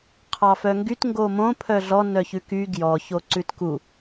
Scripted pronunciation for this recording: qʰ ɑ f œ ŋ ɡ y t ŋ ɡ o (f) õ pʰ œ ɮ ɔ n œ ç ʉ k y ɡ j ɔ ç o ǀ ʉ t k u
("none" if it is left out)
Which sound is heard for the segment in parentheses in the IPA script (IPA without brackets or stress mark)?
m